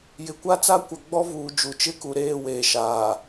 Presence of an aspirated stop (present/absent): absent